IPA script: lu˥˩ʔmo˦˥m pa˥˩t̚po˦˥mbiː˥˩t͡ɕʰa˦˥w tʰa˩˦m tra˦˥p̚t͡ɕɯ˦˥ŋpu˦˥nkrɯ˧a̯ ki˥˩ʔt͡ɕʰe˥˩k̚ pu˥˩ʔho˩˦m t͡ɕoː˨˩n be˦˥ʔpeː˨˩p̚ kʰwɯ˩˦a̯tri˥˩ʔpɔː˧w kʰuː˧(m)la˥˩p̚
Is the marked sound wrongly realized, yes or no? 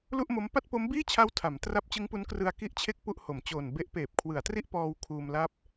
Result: no